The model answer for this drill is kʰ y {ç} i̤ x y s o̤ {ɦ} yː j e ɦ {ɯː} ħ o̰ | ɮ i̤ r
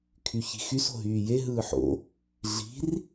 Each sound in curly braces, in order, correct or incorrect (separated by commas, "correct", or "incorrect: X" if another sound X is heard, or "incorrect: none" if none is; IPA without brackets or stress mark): correct, correct, correct